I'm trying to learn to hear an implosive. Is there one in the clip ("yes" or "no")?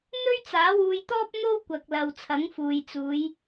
no